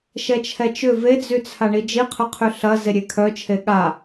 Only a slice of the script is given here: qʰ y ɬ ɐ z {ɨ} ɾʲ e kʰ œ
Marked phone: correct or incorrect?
incorrect